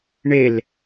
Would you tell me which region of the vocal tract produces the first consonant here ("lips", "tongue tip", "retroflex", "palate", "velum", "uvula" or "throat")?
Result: retroflex